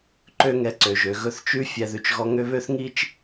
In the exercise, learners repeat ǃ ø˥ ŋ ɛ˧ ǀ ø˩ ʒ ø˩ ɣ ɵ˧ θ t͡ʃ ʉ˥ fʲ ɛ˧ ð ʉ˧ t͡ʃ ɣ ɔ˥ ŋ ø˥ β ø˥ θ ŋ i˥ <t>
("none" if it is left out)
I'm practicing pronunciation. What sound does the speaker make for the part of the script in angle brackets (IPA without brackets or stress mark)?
t͡ʃ